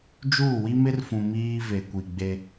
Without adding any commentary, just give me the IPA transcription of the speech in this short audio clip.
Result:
d͡ʒ uː˦˨ w i˦ m ɪ˦ r f ũ˨ m iː˦ v e˨ kʷ i˨ ɡ͡b e˦

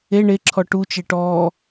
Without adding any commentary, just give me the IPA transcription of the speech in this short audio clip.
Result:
e ɳ e ǁʰ ɔ ʈ u t͡ʃ e ʈ ɔː

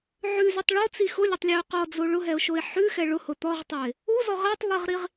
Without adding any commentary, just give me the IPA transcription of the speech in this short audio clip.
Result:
ʕ ʉ z ʉ tˤ ɭ o t͡s i x ʊ lʲ ʊ tˤ lʲ ɛ ʊ̯ q ɔ d͡z o ɭ ʊ ɦ ɛ ʊ̯ ʃ o ɪ̯ ħ ʉ x ɛ ɭ ʊ h ʊ t̪ ɔ ʁ tˤ o ɪ̯ | u z ɔ ʁ ɛ tˤ lˠ i ʁ ɾ i ʁ

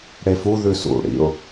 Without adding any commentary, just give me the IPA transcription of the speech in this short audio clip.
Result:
ɽ e f u ð ʉ s ṵ ɽ ḭ ʊ̯

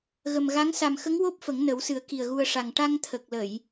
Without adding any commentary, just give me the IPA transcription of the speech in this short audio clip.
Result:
ɣ ə˨˩ m ɣ a˧˥ ŋ s a˨˩ m x ə˧˥ ŋ w o˦˥ p̚ f ə˨˩˦ ŋ n ə˨˩˦ w s ɨ˨˩˦ ə̯ k i˨˩ ə̯ ɣ u˧ ə̯ ʂ a˨˩ ŋ ʈ a˧ ŋ t̪ʰ ə˨˩ k̚ l ə˨˩˨ j

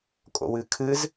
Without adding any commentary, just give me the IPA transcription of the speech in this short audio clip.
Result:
kʼ o̰ w ɨ kʰ ɨ z

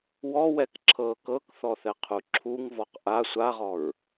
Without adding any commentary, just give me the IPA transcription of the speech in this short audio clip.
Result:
w ɔ w ɛ k ǁʰ ɤ k ɤ k θ ɔ θ ɛ qʰ u ǁʰ u ŋ v ɔ q ʔ a sʷ a ʁ ɔ ɹ

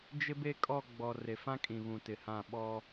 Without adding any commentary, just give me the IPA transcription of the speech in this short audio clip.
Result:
d͡ʒ ɪ˦ b e˦ kʼ ɔ˦˨ ɡ͡b ɔ˨ r e˨ f ã˦ kʼ ĩ˨ β ũ˨ t ɪ˨ h ã˦˨ ɓ ɔ˦

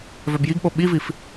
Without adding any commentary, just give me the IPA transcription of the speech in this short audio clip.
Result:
v œ b j i ɡ ɓ o ɓ i v i f

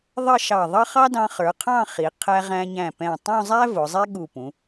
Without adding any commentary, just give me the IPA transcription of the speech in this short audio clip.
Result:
ðˤ ə˥˧ ʃ ɑ˧˩ ðˤ ʌ˥˧ χ ɑ˥ d ɑ̃˧ χ ə˞˩˧ qʰ ɑ̃˥˧ χ i˩˧ qʰ æ˧ ʁ æ̃˧ ɲ æ̃˧˩ p ɛ̃˧˩ tˤ ũ˥˧ zˤ æ˥ v ʊ˩˧ zˤ ɛ˥ ɠ u˧˩ p ũ˩˧

